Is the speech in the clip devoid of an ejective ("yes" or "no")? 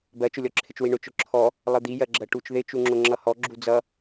yes